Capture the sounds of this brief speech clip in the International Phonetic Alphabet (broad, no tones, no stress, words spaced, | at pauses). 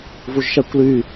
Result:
vuʒʃækʷly